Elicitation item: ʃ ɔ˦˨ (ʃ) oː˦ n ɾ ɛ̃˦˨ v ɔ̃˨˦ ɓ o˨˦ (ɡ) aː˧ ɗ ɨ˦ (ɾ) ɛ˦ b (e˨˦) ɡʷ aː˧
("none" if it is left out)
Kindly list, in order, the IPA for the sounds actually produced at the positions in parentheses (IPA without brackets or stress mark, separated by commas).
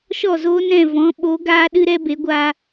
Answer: z, ɡ, ɾ, e˨˦